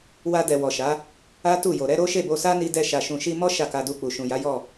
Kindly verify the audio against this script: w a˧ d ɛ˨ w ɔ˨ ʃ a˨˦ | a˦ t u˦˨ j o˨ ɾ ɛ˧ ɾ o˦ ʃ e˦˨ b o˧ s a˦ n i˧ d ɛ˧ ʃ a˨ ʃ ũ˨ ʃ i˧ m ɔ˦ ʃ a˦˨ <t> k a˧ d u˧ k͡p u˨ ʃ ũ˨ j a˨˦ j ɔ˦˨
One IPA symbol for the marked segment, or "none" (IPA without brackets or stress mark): none